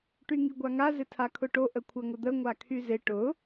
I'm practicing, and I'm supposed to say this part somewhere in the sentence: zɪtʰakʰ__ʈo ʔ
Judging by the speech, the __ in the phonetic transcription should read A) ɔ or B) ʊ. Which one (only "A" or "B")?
B